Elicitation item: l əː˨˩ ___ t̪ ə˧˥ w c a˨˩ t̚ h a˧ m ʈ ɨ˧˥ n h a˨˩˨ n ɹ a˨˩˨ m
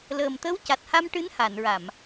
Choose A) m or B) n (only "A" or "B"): A